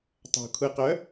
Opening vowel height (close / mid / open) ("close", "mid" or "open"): open